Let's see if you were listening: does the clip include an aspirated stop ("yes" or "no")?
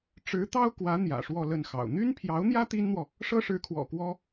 yes